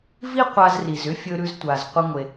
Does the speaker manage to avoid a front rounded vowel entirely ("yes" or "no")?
no